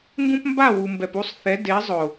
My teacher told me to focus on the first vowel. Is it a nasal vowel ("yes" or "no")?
yes